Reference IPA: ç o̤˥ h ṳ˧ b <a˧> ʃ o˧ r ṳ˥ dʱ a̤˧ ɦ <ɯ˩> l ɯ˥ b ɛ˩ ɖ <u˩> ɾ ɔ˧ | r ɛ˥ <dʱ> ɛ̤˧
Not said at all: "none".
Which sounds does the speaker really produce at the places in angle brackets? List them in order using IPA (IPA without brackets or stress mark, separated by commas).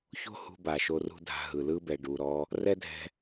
a˩, ɯ˩, u˩, dʱ